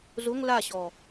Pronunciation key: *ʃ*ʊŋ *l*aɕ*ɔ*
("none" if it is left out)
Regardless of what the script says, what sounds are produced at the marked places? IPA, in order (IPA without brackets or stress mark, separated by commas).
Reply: z, l, ɔ